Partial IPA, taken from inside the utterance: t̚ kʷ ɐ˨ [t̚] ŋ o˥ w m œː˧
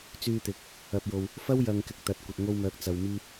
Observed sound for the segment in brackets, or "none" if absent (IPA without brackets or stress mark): t̚